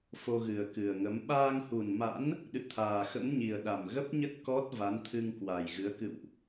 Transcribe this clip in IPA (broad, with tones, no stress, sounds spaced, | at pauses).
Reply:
f o˧ ɣ ɨ˨˩ ə̯ k ɨ˨˩ ə̯ ŋ ə˨˦ m ɓ aː˧ ŋ h u˨˩ n m a̰˧˥ n | ɗ ɨ̰˧˨ t̪ʰ aː˨˩ x ə̰˧˥ m ɲ i˨˩ ə̯ ɗ a˨˩ m ɣ ə˦˥ p̚ ɲ ə˦˥ t̚ k ɔ˦˥ t̚ v a˨˦ n t̪ʰ ɨ˧ ŋ k w a˨˩ j ɣ ɨ˨˦ ə̯ k ɨ̰˧˨ w ʔ